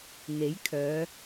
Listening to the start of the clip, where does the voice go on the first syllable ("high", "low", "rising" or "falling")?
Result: rising